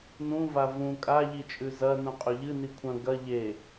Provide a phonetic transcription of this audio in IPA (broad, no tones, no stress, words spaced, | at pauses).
nũva vũ kʼaʎit͡ʃʼʉ zɐ nũqʼɵʎɨ nikʷʰɐ̃ ɡɐ ʎe